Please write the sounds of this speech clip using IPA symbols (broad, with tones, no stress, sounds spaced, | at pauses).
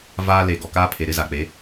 v aː˦ l e˨ ɡ ɔ˨ k aː˦ pʰ e˨ ɾ ɪ˦ z a˨ k͡p e˨˦